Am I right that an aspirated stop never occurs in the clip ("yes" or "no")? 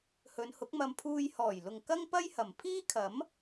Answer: no